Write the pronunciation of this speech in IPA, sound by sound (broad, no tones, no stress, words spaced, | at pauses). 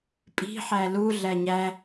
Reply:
pʼi̤ ħælu ɮæɲæ